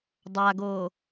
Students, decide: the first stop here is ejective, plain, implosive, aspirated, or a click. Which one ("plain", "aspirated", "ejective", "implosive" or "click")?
plain